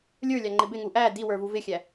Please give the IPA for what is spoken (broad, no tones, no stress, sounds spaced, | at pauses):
lʲ ə˞ lʲ ɑ ŋ͡ǃ ɪ b ɪ ŋ u ʔ æ d i w ə˞ v u v ɪ xʲ æ